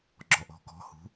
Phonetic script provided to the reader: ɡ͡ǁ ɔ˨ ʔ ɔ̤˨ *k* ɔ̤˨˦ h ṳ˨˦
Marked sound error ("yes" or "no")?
no